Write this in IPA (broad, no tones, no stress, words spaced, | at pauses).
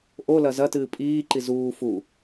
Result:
ʔo lɐzɐtɨː pʼiːǃi zuː fu